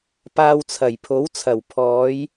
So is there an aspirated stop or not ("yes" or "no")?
yes